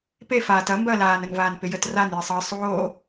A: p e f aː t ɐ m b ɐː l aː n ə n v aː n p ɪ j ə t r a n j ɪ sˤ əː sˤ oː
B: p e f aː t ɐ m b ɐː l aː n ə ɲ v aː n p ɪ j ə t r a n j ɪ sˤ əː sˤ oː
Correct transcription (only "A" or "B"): A